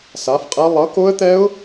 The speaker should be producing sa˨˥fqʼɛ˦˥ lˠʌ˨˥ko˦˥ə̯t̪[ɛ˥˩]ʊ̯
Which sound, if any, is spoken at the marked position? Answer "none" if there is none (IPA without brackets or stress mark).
ɛ˦˥